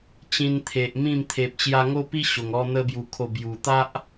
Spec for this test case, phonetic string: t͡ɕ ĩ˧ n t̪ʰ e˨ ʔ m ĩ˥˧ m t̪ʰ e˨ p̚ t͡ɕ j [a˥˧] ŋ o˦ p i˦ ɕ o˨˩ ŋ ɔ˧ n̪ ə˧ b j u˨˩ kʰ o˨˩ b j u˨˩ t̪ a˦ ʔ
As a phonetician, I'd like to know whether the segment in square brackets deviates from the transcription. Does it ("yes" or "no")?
yes